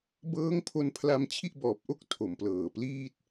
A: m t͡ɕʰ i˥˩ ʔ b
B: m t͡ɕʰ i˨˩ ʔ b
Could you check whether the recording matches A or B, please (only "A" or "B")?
A